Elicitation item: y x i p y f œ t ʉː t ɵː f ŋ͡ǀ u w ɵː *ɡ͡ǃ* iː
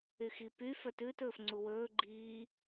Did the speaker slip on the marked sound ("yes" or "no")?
no